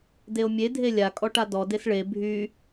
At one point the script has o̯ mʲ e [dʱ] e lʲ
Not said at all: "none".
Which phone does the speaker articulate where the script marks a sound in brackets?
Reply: dʱ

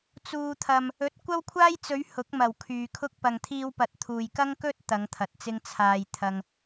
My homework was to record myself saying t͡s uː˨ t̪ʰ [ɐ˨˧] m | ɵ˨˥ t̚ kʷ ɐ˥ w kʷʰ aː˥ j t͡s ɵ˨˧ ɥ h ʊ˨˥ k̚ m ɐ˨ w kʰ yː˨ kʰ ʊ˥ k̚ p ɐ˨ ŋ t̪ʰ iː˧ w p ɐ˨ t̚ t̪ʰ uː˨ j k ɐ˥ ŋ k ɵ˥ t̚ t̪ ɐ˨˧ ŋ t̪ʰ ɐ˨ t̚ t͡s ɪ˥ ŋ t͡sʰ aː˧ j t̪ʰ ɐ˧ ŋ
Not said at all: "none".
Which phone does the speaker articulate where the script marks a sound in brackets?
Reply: ɐ˨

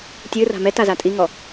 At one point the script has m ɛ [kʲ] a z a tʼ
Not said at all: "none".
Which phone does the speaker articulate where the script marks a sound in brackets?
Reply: t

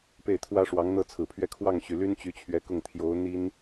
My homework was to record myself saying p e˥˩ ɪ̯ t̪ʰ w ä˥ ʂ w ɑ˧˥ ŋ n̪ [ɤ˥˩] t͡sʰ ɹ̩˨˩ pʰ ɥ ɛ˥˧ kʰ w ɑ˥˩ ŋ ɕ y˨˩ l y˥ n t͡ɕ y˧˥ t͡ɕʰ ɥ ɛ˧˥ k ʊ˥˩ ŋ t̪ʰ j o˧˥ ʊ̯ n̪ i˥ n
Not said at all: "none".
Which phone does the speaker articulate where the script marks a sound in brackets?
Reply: ɤ˥˩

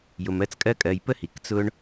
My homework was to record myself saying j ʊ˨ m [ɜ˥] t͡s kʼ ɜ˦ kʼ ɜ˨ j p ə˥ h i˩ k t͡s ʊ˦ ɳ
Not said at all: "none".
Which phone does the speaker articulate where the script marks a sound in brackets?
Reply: ɜ˦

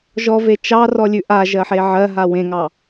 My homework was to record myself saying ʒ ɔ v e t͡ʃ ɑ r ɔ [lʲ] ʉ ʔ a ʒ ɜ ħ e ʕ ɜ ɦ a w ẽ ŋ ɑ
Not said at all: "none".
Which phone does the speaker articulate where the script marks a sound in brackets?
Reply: lʲ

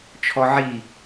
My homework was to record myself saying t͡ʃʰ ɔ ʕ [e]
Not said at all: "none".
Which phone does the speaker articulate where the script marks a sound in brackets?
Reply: i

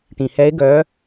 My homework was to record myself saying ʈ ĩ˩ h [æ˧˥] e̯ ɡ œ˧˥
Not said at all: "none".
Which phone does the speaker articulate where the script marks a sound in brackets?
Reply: ɛ˧˥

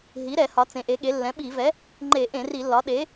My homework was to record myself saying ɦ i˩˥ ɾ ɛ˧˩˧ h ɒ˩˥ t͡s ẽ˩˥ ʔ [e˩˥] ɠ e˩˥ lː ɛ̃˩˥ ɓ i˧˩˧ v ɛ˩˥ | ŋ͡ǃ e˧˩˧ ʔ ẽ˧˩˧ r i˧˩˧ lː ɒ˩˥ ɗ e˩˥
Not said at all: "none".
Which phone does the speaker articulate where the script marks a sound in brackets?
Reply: e˩˥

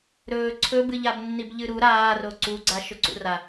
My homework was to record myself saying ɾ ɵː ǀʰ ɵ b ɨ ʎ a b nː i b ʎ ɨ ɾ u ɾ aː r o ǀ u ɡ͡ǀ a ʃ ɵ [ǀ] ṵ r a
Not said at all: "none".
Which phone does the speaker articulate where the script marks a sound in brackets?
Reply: ǀ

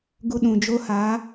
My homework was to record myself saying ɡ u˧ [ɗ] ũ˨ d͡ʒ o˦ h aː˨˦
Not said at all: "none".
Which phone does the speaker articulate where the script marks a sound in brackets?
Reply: ɗ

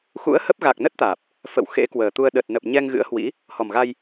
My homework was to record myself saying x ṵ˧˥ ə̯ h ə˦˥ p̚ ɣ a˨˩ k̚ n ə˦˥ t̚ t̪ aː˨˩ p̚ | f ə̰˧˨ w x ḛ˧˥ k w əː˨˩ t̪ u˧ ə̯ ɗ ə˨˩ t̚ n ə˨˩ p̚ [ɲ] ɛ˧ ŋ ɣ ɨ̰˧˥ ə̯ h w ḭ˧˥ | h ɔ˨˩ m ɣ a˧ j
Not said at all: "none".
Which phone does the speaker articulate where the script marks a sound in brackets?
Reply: ɲ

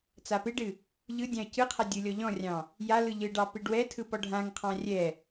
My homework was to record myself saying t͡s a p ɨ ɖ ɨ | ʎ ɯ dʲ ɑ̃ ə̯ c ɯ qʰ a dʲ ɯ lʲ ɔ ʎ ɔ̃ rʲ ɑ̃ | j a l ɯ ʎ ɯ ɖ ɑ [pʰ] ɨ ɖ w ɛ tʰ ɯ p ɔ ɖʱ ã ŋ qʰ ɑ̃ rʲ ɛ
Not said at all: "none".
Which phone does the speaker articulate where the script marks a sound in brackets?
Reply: p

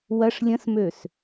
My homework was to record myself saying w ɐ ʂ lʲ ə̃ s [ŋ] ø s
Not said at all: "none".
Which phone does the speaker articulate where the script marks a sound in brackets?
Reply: m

